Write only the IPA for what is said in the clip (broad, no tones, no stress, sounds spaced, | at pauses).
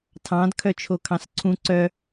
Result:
tʰ ɑ̃ d kʰ œ t͡ʃʰ o kʰ ɑ̃ s ǀʰ ũ ǀ œ